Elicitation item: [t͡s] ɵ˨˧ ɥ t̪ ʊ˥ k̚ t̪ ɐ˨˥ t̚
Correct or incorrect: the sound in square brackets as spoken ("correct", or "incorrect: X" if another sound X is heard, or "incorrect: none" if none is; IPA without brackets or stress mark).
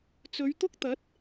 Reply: correct